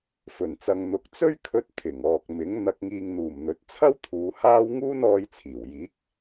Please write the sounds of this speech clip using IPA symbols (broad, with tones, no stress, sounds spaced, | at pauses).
f ɵ˨˩ n t͡s ɐ˨ ŋ n̪ ʊ˨ k̚ t͡s ɵ˥ ɥ kʰ ɵ˧ t̚ t̪ʰ ɪ˨˩ ŋ ɔː˨ k̚ m ɪ˨˥ ŋ n̪ ɐ˨ k̚ ŋ iː˨ ŋ n̪ uː˨˩ m n̪ ɵ˨˥ t̚ t͡sʰ ɐ˥ w t̪ʰ uː˨˧ h aː˥ w ŋ uː˥ n ɔː˧ j t͡sʰ iː˨˩ w j iː˨˥ k̚